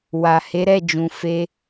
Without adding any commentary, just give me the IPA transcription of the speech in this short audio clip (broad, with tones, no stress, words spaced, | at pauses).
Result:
wa˨ he˨˦ɾɛ˦˨d͡ʒũ˨ fe˧